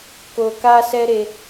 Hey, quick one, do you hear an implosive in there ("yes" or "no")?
no